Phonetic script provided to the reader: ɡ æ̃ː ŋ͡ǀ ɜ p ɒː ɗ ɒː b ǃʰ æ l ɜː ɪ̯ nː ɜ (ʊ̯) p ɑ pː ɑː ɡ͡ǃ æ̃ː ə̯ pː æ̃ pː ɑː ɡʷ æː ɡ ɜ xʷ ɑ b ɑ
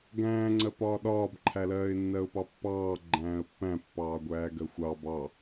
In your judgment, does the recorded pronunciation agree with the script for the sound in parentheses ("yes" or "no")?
yes